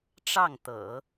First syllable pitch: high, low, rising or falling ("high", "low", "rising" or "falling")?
falling